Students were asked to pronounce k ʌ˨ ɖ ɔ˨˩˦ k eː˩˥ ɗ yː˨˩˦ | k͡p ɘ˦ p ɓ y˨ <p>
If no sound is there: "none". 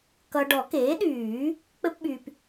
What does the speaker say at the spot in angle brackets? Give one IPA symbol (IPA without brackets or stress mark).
p